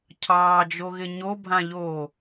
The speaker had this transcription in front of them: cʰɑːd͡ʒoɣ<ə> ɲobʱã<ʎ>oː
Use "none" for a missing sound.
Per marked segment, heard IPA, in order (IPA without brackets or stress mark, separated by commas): ɪ, ʎ